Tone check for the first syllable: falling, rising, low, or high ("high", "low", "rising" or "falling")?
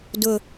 low